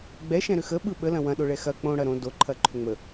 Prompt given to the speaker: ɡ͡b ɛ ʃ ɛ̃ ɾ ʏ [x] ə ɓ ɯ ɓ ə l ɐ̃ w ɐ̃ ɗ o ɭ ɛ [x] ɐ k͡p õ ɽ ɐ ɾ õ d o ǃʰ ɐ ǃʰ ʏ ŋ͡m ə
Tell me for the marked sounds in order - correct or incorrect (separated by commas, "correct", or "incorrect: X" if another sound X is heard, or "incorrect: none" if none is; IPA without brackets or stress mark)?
correct, correct